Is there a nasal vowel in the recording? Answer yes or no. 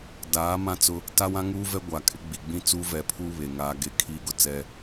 yes